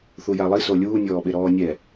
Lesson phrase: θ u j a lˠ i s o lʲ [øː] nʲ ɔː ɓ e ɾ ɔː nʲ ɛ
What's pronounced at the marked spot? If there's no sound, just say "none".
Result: uː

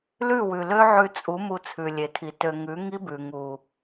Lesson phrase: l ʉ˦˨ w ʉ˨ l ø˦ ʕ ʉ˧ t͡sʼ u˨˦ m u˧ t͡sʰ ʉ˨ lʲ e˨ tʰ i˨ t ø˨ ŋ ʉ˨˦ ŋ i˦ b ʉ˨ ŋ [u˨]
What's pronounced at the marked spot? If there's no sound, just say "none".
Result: u˨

